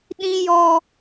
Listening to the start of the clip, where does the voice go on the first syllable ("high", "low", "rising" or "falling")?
high